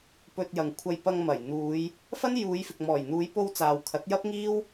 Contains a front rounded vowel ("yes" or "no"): no